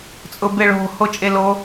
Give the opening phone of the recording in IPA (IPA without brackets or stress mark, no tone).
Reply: t͡sʼ